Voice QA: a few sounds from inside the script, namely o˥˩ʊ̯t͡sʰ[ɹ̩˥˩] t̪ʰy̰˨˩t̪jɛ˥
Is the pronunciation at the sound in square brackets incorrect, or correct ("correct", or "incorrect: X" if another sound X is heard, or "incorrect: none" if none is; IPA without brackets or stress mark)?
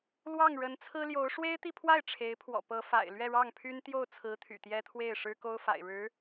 incorrect: ɹ̩˧˥